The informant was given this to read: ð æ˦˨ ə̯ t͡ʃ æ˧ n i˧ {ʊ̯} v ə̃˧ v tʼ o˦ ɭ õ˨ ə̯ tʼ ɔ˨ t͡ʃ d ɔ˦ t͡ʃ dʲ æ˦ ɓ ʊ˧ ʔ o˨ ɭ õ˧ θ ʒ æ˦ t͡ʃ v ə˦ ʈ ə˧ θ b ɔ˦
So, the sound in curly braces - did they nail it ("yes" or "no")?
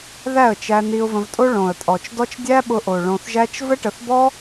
yes